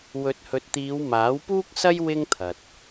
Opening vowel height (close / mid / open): mid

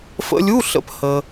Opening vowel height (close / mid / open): mid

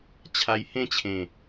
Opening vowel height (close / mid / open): open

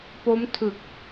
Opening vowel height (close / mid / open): mid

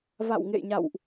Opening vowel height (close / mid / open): open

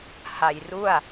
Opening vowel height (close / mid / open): open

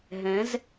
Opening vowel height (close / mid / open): mid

